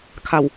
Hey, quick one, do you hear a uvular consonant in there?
no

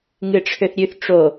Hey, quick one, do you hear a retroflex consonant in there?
yes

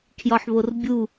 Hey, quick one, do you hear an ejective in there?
no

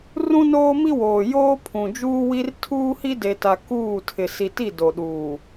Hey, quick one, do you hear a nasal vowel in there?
yes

